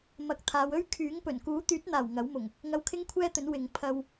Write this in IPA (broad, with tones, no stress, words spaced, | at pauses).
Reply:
mɐ˨˥k̚t̪ʰaː˨˧w ɵ˥ɥkʰyː˨˥ŋpɵ˨˩n kuː˨˥t̪yː˨˥t̚n̪aː˨˩w ŋɐ˨˥wmʊ˨˩ŋ | ŋɐ˧wkʰɪ˥ŋkʷʰɛː˥t̪ɵ˨˥n wɪ˨ŋ pʰɐ˧w